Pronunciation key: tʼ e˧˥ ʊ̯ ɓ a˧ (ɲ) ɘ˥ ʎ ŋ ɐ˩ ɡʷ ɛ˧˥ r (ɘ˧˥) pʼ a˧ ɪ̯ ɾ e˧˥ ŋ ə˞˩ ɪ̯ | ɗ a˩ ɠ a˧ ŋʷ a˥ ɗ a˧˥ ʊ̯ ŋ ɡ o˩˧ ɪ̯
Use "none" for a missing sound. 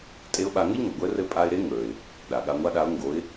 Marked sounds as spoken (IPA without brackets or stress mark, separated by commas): ŋ, ɘ˧˥